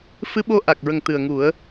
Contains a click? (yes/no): no